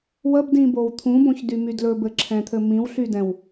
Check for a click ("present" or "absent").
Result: present